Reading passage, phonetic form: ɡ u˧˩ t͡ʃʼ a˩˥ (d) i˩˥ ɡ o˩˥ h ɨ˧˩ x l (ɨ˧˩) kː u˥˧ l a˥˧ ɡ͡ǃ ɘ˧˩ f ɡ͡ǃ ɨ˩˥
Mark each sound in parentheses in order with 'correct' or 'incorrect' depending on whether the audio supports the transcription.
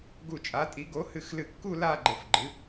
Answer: incorrect: tʼ, correct

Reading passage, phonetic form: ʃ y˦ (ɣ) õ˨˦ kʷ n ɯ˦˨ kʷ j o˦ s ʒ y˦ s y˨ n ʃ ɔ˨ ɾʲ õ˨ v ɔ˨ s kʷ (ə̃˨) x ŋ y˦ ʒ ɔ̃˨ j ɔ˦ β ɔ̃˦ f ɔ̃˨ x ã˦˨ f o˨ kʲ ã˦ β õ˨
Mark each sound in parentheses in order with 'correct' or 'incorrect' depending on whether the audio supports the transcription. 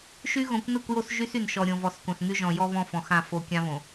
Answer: correct, incorrect: ã˨

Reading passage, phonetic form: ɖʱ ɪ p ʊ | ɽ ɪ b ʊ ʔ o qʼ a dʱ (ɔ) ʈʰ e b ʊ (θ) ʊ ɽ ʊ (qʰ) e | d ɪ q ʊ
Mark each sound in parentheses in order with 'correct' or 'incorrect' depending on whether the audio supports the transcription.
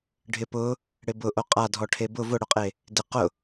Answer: correct, incorrect: v, incorrect: qʼ

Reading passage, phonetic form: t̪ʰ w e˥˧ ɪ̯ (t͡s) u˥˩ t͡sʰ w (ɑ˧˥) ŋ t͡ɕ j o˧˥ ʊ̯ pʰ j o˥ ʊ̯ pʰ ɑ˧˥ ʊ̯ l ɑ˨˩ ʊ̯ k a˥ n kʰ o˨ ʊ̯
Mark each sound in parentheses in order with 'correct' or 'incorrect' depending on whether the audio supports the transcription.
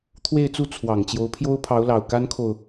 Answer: correct, incorrect: ɑ˨˩

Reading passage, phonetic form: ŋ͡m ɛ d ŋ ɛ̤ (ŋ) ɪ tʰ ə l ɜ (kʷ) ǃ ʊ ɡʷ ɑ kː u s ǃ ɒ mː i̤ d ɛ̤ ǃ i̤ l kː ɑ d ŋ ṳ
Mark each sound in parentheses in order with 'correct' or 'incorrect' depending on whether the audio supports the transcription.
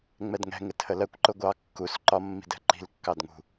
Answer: correct, correct

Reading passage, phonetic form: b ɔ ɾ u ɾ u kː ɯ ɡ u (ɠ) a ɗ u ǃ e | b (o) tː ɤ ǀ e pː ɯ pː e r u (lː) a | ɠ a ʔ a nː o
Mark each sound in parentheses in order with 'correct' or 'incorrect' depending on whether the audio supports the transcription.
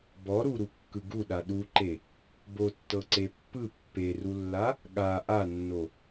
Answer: incorrect: ɗ, correct, correct

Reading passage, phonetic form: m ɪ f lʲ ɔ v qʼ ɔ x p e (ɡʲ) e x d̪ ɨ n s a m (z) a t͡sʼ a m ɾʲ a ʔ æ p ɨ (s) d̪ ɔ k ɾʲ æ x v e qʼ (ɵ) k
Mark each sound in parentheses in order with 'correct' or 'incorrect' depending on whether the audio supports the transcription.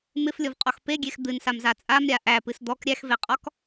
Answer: correct, correct, correct, incorrect: ɔ

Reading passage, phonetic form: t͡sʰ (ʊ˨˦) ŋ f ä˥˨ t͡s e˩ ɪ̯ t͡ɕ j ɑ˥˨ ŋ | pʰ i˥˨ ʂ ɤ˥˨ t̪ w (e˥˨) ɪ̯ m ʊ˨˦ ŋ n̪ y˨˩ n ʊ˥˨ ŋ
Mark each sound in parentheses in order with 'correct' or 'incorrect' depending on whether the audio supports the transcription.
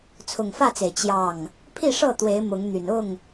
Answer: incorrect: ʊ˨˩, incorrect: e˨˦

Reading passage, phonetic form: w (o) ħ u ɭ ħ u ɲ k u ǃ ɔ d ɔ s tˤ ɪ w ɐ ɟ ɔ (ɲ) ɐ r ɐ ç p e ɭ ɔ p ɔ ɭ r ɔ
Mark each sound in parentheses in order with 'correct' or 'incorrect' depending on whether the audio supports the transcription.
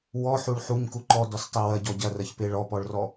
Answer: incorrect: ɔ, incorrect: ɟ

